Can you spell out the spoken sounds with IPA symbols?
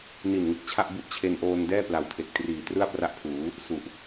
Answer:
n i˨˩ n ŋ ɯ˨˩ k̚ t͡ɕʰ a˥˩ ʔ b u˦˥ ʔ t͡ɕʰ e˧ n ʔ oː˧ n d ɛː˥˩ p l a˨˩ w tʰ e˨˩ k̚ t r iː˨˩ t r ɯ˥˩ a̯ p r a˦˥ ʔ pʰ uː˩˦ | s u˨˩ ʔ

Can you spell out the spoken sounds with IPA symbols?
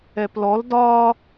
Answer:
ɛ p l ɔ l d ɒ

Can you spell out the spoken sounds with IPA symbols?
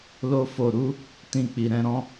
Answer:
l o˧ f o˨ ɾ u˨˦ | t ĩ˧ k͡p i˨ ɾ ɛ̃˧ ɾ ɔ̃˦

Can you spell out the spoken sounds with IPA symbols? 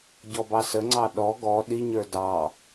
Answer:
ɟ ɔ b ɑ s ə ŋ͡ǀ ɑ ɗ ɔ ɡ ɔ ɗ i ɲ ə˞ d ɑ

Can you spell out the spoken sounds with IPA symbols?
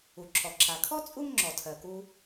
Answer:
u˩ ǁʰ ɔ˩ ǁʰ a˩ kʰ ɔ˥ t͡sʼ u˥ ŋ ŋ͡ǁ ɔ˩ tʰ ɜ˩ k u˧

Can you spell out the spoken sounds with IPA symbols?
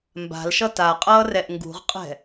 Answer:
m b a̤ l ʃ ʌ t a qʼ ʌː r ɛ ʔ ŋ ɡ ṳ ʁ qʼ ɛ̤

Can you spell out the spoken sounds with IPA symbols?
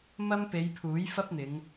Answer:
m ɐ˥ m p e˨˧ j pʰ uː˨˥ j f ɐ˥ p̚ n̪ ɪ˨˧ ŋ

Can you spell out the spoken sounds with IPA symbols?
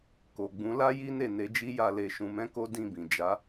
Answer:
k o˨ ɡ͡b ũ˨˦ l a˦ j i˦ n e˦˨ n e˨˦ d͡ʒ i˦ j a˧ l e˧ ʃ ũ˧ m ɛ̃˦ k o˦ d ĩ˦˨ b ĩ˨ d͡ʒ a˨˦

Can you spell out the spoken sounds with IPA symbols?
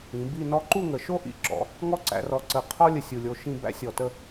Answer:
ĩ˩˧ b i˥˧ n ɔ˥ ǃ u˥˧ ŋ ə˩˧ ʃ o˥ ʔ ḭ˧˩ ǁ ɔ̰˩˧ | ŋ ɔ˥ ǀ æ̰˧ r ɔ˧ ǀ ə˧˩ qʰ ɔ˥ lʲ ə˧˩ sʲ u˧˩ lʲ o˧ ʃ ĩ˥˧ b æ̰˥˧ sʲ ɔ˧˩ t ə˥˧

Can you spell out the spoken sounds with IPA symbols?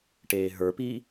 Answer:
ʈ eː ɦ ə˞ p iː

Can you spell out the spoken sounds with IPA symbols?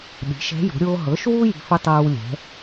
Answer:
ɗ i̤˩˥ ʃ ɛ̤˧˥ j o̤˩˥ ɾʲ oː˥ ɦ ɤ˩˥ ʃ w u˥ j i̤˧˥ f ɵ˥ tˤ ɤː˥ w lʲ ɛ̤˩˥

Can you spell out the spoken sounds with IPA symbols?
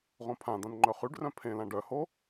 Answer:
ʁ õ pʰ ã d̪ ã n ŋ͡ǃ œ χ y ɖ r œ̃ pʰ ẽ l ã ɖ œ h o

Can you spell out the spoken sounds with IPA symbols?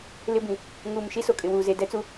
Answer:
l ɪ˦ b ĩ˨ | ŋ uː˨ m ʃ i˦ s o˨ kʼ ɪ˨ w uː˨ z e˨ d ɛ˦ t͡s u˦

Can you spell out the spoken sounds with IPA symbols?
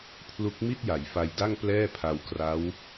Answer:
pʰ l u˦˥ k̚ m i˥˩ t̚ j a˩˦ j f a˧ j d a˥˩ ŋ p l ɛː˥˩ pʰ a˧ w k r a˦˥ w

